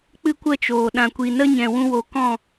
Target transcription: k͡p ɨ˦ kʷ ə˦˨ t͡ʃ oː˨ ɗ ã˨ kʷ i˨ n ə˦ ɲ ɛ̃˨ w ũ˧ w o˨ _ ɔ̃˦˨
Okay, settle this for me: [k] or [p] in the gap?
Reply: k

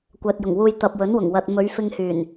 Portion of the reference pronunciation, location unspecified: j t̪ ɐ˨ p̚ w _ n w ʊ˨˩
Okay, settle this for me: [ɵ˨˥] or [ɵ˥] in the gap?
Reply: ɵ˨˥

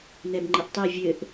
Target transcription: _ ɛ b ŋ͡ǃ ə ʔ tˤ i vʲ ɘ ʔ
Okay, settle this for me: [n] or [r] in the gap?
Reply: n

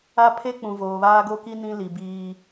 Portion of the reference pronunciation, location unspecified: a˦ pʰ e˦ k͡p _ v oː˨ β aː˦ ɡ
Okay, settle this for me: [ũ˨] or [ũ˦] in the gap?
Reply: ũ˨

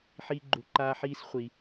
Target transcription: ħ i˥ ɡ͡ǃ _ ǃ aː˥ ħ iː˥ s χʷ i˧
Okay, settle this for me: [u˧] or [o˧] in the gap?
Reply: u˧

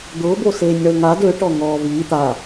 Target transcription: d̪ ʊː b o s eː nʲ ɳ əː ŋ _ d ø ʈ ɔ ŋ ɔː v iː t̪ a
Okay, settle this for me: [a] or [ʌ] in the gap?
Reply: a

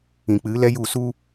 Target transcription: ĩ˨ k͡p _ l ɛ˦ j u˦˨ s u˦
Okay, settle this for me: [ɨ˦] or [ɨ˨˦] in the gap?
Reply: ɨ˨˦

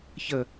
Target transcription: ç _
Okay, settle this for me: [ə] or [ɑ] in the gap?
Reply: ə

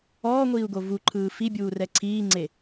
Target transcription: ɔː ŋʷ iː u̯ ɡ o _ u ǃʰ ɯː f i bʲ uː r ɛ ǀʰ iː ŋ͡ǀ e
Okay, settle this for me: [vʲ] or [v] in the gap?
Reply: v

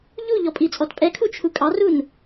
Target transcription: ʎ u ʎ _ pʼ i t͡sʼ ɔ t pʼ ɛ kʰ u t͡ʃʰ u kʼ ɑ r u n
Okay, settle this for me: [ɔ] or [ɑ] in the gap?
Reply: ɔ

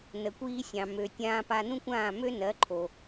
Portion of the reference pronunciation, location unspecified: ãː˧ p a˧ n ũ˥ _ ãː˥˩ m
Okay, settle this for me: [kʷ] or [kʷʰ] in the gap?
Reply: kʷ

